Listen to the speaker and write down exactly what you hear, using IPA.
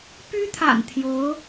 p y˥ t̪ʰ a̰˨˩ n t̪ʰ j o˧˥ ʊ̯

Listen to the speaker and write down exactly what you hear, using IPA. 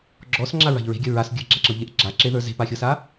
ɡ͡ǁ ɔ s ŋ͡ǁ a ɹ a̤ ʎ ɹ e̤ ɡʲ ɐ ɹ a s ɡʲ ə˞ ɡ͡ǁ a ǁ ɤ ʎ e ʔ ɡ͡ǁ a ǁ e ð ə˞ z e̤ p a xʲ ɤ s a

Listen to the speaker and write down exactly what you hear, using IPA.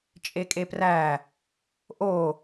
t͡ʃʼ e kʼ e p r æ | ʔ o

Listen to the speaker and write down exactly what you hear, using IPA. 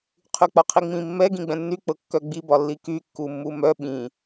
qʰ y k͡p ɒ qʰ i ŋ͡m ĩ mː ɛ ɡ ĩ ɡ͡b ɛ̃ nː y k͡p ɤ kː œ ɡ͡b i b ɒ lː i k y kː u mː u m œ ɓ ĩ

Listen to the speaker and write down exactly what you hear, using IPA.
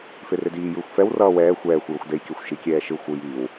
f e r e d iː j ɯː xʷ f ɛ w r ʌː w ɛː xʷ ɛː xʷ j o xʷ d e j kʲ a xʷ ʃ i kʲ ɛː ʃ ɯ xʷ ɯ j iː w

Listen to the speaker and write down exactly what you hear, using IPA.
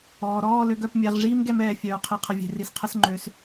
ɔː˨ ɾ ɔː˦˨ l ø˨˦ ɡ œ˧ p mʲ ɛ˧ ʁ ʐ iː˦ m ɡ ɛ˧ m ɛː˨ fʲ œː˨ qʰ i˨ qʰ ə˨ vʲ e̤˨ r i˨ s qʰ ə˧ s ŋ͡ǃ ø˨˦ s

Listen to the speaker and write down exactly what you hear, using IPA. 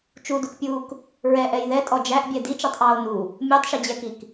t͡ʃ u d u k pʲ uː k | ɹ ɛ ʔ ɛ j ð ɛ tʼ ɔ d͡ʒ æ ʔ bʲ ɛ d i t͡ʃ ɔ tˤ ʔ ɑː o̯ n u | mʲ ɔ tˤ ʃ i d͡ʑ ɛ k i k

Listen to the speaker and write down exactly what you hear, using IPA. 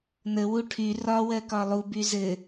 n ə w u ʈʰ y r ɒ w ɜ k ɒ lˠ u b y z ɘ

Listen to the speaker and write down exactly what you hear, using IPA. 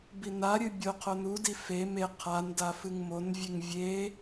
b i n a ɾʲ ɨ bʲ o qʰ o n u d i f e m e qʰ a n d a f ɨ ŋ m o n vʲ e ŋ vʲ e

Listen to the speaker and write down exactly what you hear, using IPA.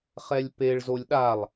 χ ɛ lʲ p e ɭ z o lʲ ɗ a lˠ

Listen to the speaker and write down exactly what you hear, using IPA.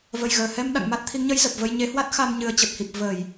v ə˨˩ j ɣ əː˧˩ h ɛ˧ m ɗ a̰˧˨ ŋ m a˦˥ t̚ t̪ʰ i˨˦ ŋ ɲ ə˨˦ j z ə˨˩ p̚ v ə˧ j ɲ e˨˦ h w a˦˥ t̚ x a˧ m ɲ ɨ˨˩ ə̯ t͡ɕ ə˨˩ p̚ h i˨˩ p̚ v ə˧˩˨ j

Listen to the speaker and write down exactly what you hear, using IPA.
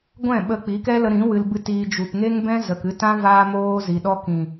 ɡʷ ɛ̃˦˨ ɓ ə˧ k͡p i˨˦ k ɛ˦ l ə˧ ɾ ĩ˨˦ w ɨ˧ l b ɨ˦˨ t iː˧ d͡ʒ u˨ p ŋ e˦ ŋ b ɛ̃˦ z ə˨ k ɨ˧ t ã˦ v aː˦ m oː˦ z i˨ ɗ ɔ˦ k ĩ˨

